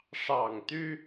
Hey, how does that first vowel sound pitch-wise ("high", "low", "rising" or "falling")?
low